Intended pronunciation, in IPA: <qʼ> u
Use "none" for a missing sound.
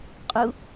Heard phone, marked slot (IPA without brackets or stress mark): qʼ